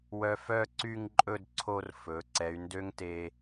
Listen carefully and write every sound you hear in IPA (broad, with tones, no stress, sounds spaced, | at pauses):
w œ˧ f œ˥˧ ǀ y˥˧ ŋ ǃʼ ɵ˥˧ d ǀʰ o˧ r f ɵ˩˧ ǀ ɛ˩˧ y̯ n d ø˥ ŋ t e˧